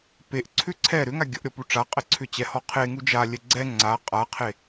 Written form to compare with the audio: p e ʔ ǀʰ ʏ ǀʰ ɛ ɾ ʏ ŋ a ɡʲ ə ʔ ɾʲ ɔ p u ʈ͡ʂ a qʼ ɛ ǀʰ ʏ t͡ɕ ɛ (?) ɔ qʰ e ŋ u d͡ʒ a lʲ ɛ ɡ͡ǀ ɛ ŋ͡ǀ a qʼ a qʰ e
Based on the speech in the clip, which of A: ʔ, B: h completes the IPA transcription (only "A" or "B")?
B